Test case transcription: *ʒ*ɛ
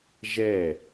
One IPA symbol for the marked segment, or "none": ʒ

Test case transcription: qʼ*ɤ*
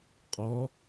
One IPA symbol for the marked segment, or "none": ɔ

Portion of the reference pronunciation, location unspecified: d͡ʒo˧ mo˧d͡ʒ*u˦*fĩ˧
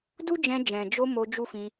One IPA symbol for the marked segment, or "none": u˦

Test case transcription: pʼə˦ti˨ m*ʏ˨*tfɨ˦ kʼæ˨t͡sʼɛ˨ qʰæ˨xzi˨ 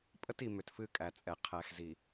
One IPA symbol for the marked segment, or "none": ʏ˨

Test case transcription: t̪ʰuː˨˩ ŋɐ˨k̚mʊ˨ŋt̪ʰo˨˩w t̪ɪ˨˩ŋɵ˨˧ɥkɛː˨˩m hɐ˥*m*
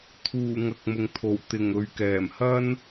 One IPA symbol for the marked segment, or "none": n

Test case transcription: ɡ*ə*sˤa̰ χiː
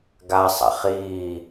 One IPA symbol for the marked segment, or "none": a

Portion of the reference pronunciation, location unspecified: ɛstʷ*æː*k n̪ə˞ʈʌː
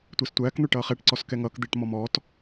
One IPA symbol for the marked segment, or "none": æː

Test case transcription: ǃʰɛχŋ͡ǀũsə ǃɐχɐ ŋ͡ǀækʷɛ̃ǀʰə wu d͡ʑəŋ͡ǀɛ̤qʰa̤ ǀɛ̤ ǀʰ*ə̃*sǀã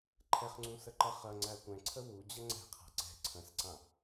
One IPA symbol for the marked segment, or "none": ə̃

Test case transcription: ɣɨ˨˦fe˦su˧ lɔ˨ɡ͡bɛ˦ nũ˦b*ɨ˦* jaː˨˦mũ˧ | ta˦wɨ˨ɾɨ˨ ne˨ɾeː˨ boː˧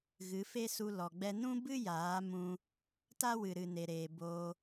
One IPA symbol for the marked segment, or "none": ɨ˦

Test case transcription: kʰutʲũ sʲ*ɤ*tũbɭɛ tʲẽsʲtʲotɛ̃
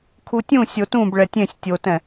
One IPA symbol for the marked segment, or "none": o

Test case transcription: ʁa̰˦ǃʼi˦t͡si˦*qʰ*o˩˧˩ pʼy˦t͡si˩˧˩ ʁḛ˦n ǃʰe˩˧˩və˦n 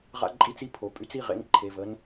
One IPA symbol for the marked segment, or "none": pʰ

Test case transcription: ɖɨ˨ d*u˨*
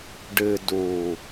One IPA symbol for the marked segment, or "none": u˨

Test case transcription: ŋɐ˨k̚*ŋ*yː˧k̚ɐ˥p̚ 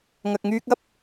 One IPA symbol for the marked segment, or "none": ŋ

